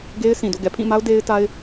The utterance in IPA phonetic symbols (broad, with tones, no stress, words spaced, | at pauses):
ɡe˦ɪ̯sĩ˨do̰˦˨ ɡɛ˨pʰĩ˦˨ma˦ʊ̯ de˦ɪ̯ ta˦ɪ̯